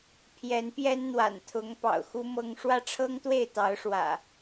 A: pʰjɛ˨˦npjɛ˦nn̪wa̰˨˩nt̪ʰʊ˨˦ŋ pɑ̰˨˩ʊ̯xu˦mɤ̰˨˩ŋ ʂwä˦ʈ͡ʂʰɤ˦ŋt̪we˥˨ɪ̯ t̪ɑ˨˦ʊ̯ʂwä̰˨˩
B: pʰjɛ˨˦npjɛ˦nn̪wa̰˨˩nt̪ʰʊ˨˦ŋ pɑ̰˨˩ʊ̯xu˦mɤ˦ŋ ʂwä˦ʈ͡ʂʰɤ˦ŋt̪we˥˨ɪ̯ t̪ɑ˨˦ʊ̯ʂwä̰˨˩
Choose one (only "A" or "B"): B